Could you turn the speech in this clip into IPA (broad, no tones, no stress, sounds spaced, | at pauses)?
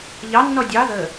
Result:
ʎ ɑ nː ɔ dʲ ɑ ð ə